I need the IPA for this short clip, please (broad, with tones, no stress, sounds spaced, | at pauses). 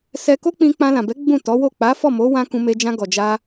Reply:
s ɛ˧ k o˦ k͡p ĩ˧ k͡p ã˧ l ã˨ b ɛ˨˦ ɡ͡b ũ˦˨ t ɔ˨˦ w o˦˨ k͡p a˨˦ f ɔ˦˨ m o˨˦ w ã˧ k ũ˧ m e˧ d͡ʒ ã˧ ɡ ɔ˨ d͡ʒ a˧